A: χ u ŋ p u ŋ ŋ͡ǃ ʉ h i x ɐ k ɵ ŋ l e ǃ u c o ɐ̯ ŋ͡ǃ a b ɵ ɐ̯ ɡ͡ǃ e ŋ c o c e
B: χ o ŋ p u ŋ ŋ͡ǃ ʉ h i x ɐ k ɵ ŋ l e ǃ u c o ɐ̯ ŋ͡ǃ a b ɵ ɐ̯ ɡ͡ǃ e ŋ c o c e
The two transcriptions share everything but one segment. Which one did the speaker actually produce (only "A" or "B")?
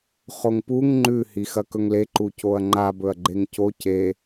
B